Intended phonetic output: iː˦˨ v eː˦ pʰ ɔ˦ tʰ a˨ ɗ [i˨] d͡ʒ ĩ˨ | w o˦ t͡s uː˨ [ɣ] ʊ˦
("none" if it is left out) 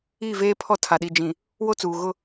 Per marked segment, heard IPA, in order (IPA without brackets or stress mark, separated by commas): i˨, ɣ